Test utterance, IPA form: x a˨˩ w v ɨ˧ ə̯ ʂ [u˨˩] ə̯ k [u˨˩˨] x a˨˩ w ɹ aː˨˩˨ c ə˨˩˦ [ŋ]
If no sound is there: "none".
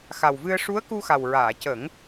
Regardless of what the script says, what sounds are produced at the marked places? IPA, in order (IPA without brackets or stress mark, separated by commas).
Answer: u˧˥, u˧, ŋ